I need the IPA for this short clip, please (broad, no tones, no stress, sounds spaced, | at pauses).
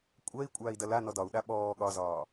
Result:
kʷʼ ɜ i̯ kʷʼ aː i̯ d ɐ l a n ɔ d ɒ u̯ ɗ a ɓ ɔː ɠ ɒ z ɒː